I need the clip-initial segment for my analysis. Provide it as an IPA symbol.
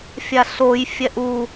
fʲ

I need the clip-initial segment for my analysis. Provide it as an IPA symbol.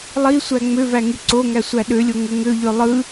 lˠ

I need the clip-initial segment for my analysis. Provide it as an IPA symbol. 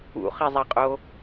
ṵ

